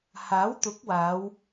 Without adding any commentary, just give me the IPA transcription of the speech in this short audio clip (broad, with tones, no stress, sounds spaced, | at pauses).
h aː˨˥ w t̪ ʊ˨˥ k̚ w aː˨˧ w